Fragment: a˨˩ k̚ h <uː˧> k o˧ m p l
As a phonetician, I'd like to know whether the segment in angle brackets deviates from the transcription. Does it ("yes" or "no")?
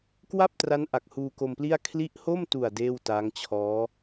no